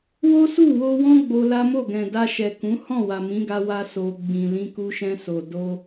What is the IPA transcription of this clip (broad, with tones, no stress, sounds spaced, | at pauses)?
w o˦ s u˦˨ w o˧ w ɔ̃˦ ɡ͡b o˧ l a˦ m o˦˨ ɡ ɛ̃˨ d a˧ ʃ ɛ˨ k ũ˨˦ h ɔ̃˦˨ w a˨ m ĩ˨˦ ɡ a˧ w a˧ s o˨ ɡ͡b ĩ˨ l ĩ˧ k u˧ ʃ ɛ̃˧ s o˨ d o˧